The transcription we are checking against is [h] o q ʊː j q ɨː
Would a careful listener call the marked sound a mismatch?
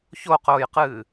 yes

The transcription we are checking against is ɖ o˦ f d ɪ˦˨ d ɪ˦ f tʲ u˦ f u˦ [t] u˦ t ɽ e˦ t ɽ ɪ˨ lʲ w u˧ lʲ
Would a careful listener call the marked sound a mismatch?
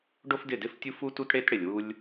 no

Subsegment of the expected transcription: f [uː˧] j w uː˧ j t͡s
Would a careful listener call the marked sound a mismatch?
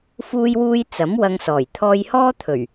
no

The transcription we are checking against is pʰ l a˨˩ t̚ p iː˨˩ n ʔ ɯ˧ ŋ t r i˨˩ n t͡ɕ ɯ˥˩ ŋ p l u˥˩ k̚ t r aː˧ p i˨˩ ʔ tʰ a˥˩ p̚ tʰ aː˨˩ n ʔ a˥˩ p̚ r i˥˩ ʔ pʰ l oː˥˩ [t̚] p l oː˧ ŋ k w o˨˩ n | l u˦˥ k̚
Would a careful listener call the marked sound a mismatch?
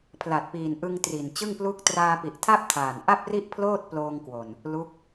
no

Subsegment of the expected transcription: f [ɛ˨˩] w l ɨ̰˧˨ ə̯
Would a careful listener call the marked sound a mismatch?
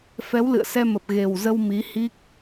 yes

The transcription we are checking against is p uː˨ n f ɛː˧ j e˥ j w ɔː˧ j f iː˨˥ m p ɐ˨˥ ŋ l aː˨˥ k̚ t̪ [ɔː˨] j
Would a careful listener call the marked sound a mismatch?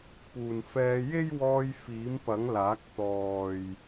no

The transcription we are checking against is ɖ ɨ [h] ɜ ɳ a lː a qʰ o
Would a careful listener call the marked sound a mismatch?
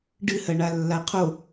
no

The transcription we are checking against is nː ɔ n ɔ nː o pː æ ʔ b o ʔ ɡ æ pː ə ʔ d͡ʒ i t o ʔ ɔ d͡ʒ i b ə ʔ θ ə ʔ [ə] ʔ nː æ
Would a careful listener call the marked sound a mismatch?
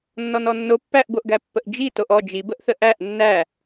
yes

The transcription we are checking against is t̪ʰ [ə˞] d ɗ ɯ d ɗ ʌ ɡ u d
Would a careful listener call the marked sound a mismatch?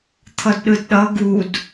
yes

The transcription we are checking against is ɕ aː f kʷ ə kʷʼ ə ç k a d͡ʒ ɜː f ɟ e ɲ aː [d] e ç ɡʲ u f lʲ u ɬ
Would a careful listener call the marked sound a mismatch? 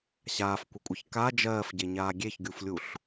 yes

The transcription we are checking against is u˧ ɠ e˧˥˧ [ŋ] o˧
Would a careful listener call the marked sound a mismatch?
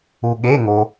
no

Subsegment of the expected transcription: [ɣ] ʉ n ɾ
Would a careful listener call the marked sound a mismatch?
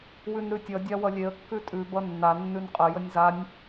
yes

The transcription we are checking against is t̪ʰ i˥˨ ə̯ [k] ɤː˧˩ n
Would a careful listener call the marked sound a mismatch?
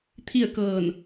no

